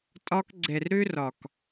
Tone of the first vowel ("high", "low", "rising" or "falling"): high